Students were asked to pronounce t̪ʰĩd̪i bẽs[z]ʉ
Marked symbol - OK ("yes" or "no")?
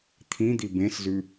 yes